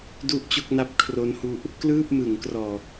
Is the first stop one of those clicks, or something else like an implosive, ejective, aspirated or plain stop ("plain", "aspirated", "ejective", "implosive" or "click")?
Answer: plain